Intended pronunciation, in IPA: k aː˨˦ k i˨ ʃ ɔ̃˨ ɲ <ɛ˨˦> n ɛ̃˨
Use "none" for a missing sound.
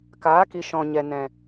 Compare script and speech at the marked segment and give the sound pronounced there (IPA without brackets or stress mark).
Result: ɛ˨